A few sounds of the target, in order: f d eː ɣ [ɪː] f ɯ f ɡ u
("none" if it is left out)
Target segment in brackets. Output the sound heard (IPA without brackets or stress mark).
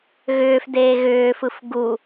ʏː